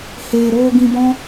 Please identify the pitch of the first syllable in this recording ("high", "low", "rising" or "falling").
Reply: low